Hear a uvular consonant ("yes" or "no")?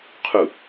yes